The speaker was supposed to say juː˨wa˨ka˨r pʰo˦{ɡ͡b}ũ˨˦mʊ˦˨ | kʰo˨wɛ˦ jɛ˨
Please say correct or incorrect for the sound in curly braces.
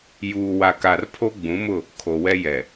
correct